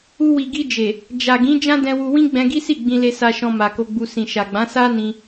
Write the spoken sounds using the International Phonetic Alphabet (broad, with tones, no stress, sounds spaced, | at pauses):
u˧ w i˨ ɡ i˧ d͡ʒ e˨ | d͡ʒ a˨ ɡ ĩ˨˦ d͡ʒ ã˦ d ɛ̃˧ w u˧ w ĩ˦ ɡ͡b ɛ̃˧ ɡ i˦ s i˦˨ ɡ͡b ĩ˧ l e˧ s a˧ ʃ ɔ̃˧ m a˨ k o˧ ɡ͡b u˧ s ĩ˨ ʃ a˨ ɡ͡b ã˨˦ s a˦ n ĩ˧